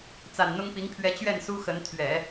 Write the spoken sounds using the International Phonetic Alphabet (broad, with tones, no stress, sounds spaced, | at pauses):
t͡s a˨˩ n n̪ ʊ˥ ŋ p i˧˥ ŋ pʰ ɥ ɛ˧˥ t͡ɕ ɥ ɛ˥˩ n s u˥ x ə˧˥ n t̪ʰ ɥ ɛ˨˩˦